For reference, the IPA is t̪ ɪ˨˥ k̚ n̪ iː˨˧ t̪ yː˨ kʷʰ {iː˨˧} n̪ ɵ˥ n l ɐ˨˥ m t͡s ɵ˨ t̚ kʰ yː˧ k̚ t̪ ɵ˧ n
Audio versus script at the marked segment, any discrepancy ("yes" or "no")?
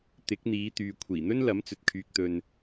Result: yes